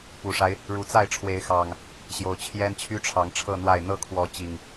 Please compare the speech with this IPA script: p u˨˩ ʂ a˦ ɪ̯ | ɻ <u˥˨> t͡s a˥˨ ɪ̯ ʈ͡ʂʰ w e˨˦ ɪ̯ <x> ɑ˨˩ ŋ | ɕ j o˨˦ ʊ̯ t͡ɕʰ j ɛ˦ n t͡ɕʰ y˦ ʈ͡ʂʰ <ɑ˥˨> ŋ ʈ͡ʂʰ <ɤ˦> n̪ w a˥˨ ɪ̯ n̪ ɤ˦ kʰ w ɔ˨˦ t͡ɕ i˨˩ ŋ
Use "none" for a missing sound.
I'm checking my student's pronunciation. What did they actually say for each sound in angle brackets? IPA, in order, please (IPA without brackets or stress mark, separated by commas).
u˨˩, x, ɑ˨˦, ɤ˥˨